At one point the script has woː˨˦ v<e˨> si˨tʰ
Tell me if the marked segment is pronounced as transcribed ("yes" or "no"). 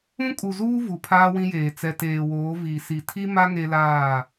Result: no